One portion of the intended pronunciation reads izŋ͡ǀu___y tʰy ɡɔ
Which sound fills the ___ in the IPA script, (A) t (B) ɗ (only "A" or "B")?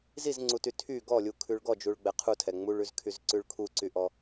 A